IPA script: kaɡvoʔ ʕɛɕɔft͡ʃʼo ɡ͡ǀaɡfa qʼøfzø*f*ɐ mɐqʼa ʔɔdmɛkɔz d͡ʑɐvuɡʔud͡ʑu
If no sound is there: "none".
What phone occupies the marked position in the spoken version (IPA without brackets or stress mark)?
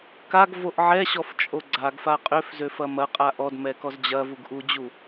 f